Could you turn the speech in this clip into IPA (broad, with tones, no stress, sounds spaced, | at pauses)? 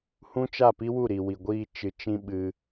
h ũ˦ t͡ʃ a˦˨ p i˦ w u˦˨ ɾ i˨ w i˨ ɡʷ iː˧ t͡ʃ ɨ˨ t͡ʃ ĩ˧ ɓ ɨ˧